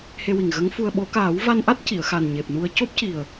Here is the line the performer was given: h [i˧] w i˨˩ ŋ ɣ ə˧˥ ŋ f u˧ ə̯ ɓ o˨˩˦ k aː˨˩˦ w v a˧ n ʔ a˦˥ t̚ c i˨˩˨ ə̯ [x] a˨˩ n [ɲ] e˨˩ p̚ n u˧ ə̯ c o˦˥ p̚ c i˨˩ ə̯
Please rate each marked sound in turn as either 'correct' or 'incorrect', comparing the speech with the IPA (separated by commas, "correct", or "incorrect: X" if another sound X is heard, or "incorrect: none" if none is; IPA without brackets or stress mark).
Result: incorrect: e˧, correct, correct